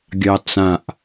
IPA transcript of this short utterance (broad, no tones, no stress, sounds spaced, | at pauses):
ɡʲ ɑ t͡s ã ʔ